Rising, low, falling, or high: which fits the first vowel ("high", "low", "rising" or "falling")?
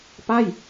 falling